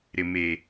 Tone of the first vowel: low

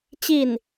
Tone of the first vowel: falling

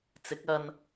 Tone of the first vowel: rising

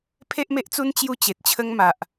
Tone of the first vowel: high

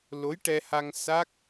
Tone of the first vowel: rising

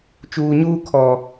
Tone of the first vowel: low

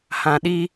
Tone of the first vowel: low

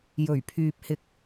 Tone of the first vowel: low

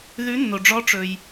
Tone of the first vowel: rising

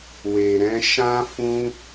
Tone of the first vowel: low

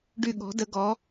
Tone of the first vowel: falling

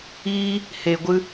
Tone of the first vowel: high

